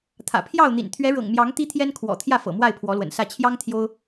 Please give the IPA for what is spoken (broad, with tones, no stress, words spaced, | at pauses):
t̪ʰä̰˨˩pʰjɑ˥˨ʊ̯n̪ḭ˨˩n t̪ʰɥɛ˨˦ɻɤ̰˨˩ŋmjɑ˨˦ŋ t̪i˦t̪ʰjɛ˦nkʰwɔ̰˨˩ t̪ʰjä˥˨fɤ̰˨˩ mwa˥˨ɪ̯pʰwɔ˨˦lwə̰˨˩nsä˥˨ t͡ɕʰjɑ˦ŋ t̪ʰjo˦ʊ̯